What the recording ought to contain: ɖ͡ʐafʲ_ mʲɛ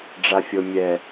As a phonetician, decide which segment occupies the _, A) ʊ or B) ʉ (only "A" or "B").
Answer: A